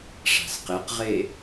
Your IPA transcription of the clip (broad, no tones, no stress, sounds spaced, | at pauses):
ʂ a̤ s q e q ʁ e